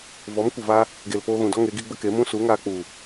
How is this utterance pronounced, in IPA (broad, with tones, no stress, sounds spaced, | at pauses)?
v ɔ˨˦ m kʷ ə˨ v a˧ | ɡ e˨ l p oː˧ ɣ ũ˨ d ɔ˦ ŋ e˨˦ ɡ i˦ ɡ͡b ə˦ k e˨˦ m ũ˦ s u˨˦ ŋ aː˧ k͡p u˨